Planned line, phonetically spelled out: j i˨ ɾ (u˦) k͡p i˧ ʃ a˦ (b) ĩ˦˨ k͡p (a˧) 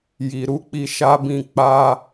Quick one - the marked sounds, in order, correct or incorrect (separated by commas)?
incorrect, correct, correct